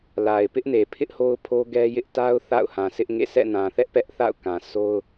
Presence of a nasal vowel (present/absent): present